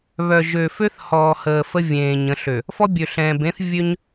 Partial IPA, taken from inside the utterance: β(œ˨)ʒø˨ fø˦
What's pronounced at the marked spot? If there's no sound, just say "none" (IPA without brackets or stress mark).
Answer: œ˨